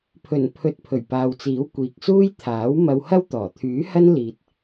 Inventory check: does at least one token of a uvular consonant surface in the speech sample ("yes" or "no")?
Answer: no